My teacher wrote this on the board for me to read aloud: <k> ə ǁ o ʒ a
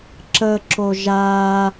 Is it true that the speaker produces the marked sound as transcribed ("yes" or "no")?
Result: no